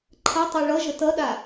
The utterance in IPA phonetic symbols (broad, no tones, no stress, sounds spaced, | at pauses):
ǃʰ ɐ tˤ o ɭ ʌ ʒ ə t ʌ ɗ a